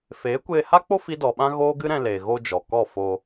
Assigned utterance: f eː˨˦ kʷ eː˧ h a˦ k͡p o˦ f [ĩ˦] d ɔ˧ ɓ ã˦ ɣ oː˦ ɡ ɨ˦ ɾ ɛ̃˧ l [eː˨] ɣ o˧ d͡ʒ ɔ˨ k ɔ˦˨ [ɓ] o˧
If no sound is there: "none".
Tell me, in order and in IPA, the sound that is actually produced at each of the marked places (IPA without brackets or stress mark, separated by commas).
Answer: i˦, eː˨, f